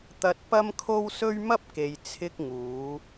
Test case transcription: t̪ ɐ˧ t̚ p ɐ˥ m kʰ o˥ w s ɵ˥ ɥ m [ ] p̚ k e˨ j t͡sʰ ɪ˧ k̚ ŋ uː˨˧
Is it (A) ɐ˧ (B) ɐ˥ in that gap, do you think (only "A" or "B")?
B